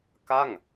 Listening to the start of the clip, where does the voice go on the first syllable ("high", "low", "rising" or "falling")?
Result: falling